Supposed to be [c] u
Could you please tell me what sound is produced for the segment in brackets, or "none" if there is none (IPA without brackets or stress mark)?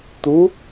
t̪